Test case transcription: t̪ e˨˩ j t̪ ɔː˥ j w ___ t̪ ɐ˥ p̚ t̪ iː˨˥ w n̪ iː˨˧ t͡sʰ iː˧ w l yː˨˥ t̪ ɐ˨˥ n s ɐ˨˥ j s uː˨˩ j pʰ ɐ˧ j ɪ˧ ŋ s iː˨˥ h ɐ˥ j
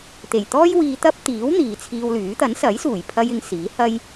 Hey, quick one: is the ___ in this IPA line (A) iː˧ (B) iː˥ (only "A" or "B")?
A